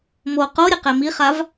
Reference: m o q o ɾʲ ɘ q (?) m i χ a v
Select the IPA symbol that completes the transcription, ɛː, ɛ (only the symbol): ɛ